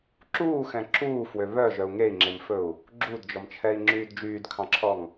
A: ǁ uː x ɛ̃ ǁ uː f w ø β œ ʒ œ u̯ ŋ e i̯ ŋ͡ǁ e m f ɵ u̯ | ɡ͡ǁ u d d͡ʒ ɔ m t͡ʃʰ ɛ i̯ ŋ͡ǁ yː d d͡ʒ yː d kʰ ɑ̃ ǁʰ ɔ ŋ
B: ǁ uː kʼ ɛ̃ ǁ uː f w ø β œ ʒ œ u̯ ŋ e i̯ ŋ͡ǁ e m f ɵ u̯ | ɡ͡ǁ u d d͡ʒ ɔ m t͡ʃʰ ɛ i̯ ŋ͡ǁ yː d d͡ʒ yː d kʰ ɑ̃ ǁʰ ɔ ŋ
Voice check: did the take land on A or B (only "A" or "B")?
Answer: A